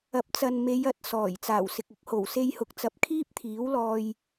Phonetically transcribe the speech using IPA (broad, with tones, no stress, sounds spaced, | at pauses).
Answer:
ɐ˨ p̚ t͡s ɐ˨ n m e˨˧ j ɐ˨ t̚ s ɔː˨˩ j t͡s aː˨˩ w s ɪ˨ k̚ ʊ˨˥ k̚ h o˨˩ w s e˧ j h ʊ˨ k̚ t͡s ɐ˨˥ p̚ kʰ iː˥ p̚ t̪ʰ iː˨˥ w l ɔː˧ j